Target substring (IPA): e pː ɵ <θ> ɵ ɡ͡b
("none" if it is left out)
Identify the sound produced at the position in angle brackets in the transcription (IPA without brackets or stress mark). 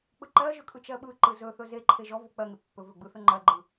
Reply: v